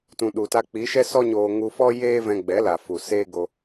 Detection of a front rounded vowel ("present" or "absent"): absent